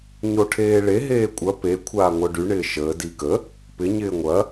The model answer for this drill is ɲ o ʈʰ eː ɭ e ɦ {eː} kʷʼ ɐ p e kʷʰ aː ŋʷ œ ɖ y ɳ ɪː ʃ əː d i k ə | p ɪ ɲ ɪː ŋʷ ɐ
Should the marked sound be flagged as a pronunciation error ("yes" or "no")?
no